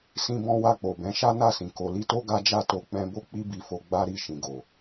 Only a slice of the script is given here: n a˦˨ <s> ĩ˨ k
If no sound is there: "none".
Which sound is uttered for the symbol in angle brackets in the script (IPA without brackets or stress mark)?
s